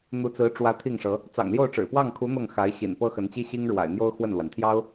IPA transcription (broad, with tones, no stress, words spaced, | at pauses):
n̪u˧˥t͡sɹ̩˧˥ʈ͡ʂwä˧˥ t̪ʰi˥˩ŋʂɤ˧˥ | t͡sɑ̰˨˩ŋljo˥˩ʊ̯ʈ͡ʂɻ̩˨˩ pwɑ˥˩ŋkʰu˧˥ n̪ɤ˥˩ŋxa˧˥ɪ̯ ɕḭ˨˩n pɤ˥xə˧˥nt͡ɕi˥ɕi˥ŋ ɻwa̰˨˩ɪ̯n̪jo˥ʊ̯ xwə˥˩nlwa˩nt̪ʰjɑ˥ʊ̯